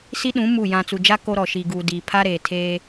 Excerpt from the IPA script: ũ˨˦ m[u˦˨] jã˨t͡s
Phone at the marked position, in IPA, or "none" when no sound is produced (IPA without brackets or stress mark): u˦˨